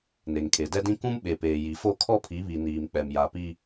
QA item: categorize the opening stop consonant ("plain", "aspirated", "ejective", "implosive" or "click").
aspirated